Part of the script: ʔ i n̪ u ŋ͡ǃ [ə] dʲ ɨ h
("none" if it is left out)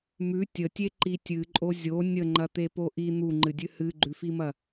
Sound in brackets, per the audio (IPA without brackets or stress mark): ɨ